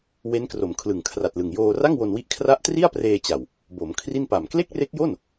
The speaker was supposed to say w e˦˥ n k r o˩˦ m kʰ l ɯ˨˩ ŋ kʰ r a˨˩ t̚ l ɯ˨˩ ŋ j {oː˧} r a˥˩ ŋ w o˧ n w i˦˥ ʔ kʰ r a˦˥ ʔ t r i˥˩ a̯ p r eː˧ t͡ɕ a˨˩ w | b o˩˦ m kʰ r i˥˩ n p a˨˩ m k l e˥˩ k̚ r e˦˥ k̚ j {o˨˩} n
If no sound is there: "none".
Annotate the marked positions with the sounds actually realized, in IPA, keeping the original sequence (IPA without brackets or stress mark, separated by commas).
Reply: oː˧, o˥˩